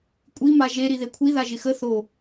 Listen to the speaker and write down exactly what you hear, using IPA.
kʷʼi maʒe ɾiðekʷʰi ðaʒɪxə θo

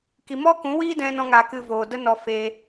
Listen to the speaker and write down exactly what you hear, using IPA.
ki˧ mɔ˦kũ˨˦wiː˦ dɛ̃˦nɔ̃˦ŋa˧kɨ˧ voː˨də˦nɔ˧ fe˧

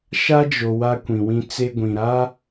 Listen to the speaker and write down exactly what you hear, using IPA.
ʃa˦d͡ʒo˨ wa˦kʷĩ˨wĩ˦ t͡se˦ɡʷĩ˨ ɾa˦

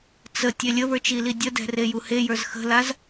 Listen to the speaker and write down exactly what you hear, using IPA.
t͡sə tʲelʲəβə˞t͡ʃ ilidʲədɛ̤ rejuhejə˞z xə̤laz

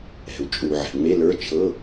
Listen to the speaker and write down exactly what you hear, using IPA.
ɛ̤˩u̯t͡ʃʼu˩ ʕɛ̤˩ŋ͡me˧˥˧lə˞˧˥˧ t͡ʃʰɤ˧˥˧

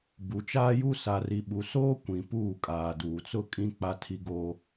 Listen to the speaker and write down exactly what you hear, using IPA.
bu˨t͡ʃaː˦ju˦ sa˨ri˨ɓu˨soː˦ kʷĩ˨puː˦˨ kʼaː˨duː˨t͡sʊ˦kʼĩ˦ k͡pa˦tʰi˦ɡoː˦

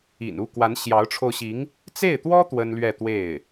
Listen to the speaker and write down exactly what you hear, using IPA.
ḭ˨˩nu˥˩ kwa˧˥nɕjɑ˧˥ʊ̯ʈ͡ʂʰo˧ʊ̯ɕi˧˥ŋ | t͡se˥˩ɪ̯t̪wɔ˥ t̪wə˥nlɥɛ˥˧t̪we˥˩ɪ̯

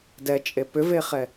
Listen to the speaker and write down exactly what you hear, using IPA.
dɛt͡ʃʼe pʏveχɛ

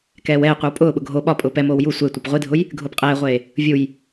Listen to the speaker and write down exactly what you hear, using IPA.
kɛːwɛːqʷiw pʼʊːɓʊ ɡʱo ɓɒpʼʊː pɛmoːw ju sʷe tʷepʁʷidʱʊj | ɡʱʊːpqʼɛːʁʷeː | vʲuj

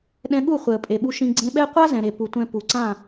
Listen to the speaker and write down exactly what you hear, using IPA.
ɗɛ̃˧ɠu˦˨χʷɛ˨ə̯ pʼe˨ɓu˧ ʃĩ˧ ɡ͡ǀẽ˧ɓɛ˦ qʷa˦zɛ̃˨ɾe˨ pu˨ tʷɛ̃˧pu˨ǀã˦˨

